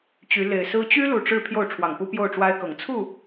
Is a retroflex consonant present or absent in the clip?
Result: present